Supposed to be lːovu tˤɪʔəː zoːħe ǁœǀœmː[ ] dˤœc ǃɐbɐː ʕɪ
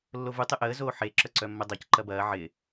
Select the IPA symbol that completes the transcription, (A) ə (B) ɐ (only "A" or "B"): A